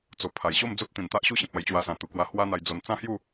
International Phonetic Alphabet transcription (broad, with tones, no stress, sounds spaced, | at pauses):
t͡s o˨˩ pʰ a˨˩ j ɕ o˥˧ m d͡z o˦ t̚ t̪ ĩ˨˩ n t̪ a˦ ʔ ɕ u˥˧ ɕ ĩ˨ p̚ a˧ j t͡ɕ w a˧ s ã˨˩ t̪ u˨˩ k w a˧ h w a˦ n̪ a˧ j d͡z o˧ n t͡s ã˦ h j u˥˧